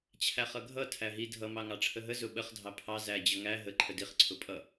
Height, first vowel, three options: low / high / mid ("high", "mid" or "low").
low